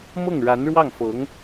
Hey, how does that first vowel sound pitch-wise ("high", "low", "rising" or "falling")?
falling